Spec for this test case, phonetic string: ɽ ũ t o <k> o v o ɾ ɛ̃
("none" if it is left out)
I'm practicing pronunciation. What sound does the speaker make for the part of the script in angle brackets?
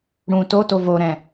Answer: t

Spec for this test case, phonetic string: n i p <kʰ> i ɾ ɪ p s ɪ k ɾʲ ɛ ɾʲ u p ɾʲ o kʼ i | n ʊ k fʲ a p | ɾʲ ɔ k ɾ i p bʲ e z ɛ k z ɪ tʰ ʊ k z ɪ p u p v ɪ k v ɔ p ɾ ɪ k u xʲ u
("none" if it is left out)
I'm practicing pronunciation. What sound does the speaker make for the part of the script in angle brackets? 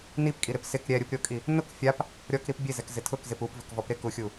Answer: kʼ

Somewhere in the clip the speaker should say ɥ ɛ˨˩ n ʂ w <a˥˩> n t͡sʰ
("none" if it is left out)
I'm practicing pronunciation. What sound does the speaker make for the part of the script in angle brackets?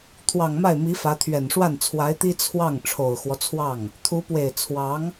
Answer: a˥˩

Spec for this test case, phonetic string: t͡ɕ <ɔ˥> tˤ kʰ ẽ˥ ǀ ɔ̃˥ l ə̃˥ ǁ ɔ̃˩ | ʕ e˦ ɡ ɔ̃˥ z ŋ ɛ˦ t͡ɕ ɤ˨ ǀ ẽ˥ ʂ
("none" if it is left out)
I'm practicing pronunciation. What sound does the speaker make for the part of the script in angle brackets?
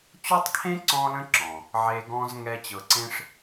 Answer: ɔ˥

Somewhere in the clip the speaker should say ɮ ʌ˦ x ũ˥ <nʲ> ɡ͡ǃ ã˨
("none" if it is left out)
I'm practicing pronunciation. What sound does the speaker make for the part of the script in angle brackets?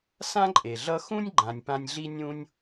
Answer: nʲ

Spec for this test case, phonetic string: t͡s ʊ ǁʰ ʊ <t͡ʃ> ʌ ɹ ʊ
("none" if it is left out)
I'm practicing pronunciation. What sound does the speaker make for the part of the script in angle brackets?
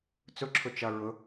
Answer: t͡ʃ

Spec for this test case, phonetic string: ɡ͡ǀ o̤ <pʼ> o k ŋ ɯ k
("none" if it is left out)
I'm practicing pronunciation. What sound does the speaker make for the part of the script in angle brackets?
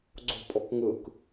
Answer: pʼ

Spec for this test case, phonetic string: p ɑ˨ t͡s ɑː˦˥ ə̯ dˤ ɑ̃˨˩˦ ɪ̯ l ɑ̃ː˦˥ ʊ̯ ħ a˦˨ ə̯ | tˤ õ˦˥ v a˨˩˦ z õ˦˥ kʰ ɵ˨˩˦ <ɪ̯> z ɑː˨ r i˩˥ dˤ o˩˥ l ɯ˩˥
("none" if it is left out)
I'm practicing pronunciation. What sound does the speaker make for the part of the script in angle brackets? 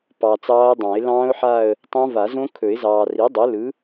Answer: ɪ̯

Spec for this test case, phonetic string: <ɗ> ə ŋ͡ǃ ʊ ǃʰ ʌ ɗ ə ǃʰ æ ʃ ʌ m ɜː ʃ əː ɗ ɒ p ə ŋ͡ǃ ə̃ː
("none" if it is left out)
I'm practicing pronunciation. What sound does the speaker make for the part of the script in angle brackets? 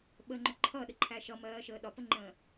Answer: ɓ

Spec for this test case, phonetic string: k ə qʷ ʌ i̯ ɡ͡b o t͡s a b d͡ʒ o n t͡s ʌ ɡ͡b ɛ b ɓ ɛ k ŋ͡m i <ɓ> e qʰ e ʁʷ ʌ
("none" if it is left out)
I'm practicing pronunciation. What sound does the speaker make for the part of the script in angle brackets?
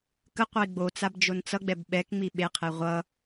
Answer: ɓ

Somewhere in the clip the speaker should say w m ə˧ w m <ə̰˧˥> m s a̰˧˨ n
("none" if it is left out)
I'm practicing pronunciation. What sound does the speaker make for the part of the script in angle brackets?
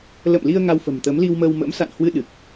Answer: ə̰˧˥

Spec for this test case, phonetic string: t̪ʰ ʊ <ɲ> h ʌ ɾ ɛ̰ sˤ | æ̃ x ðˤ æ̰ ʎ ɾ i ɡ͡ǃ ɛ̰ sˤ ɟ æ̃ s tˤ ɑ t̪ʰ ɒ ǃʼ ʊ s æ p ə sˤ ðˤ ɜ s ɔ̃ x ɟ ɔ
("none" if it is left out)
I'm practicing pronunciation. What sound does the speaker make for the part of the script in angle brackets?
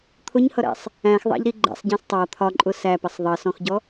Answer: ɲ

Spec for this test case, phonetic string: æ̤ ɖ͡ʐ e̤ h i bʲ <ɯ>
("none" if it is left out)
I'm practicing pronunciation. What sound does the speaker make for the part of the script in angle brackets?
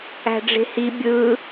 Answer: ɯ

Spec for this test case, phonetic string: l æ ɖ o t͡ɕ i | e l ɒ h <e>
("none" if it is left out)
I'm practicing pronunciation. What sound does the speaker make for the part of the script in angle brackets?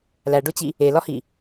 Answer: i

